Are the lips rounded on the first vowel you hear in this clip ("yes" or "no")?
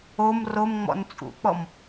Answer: yes